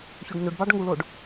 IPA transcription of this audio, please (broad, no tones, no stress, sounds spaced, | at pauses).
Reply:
ç o ɖ ɲ o ɖ b ɑ ɖ ŋ u l o ɖ